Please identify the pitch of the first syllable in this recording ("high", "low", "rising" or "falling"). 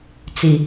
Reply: low